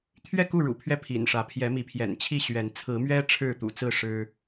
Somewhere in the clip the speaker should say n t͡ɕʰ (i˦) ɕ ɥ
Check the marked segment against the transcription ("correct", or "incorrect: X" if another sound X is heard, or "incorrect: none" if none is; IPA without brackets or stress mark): incorrect: i˥˨